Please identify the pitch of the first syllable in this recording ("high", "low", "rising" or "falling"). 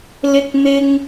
high